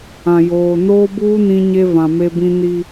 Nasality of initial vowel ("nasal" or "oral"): nasal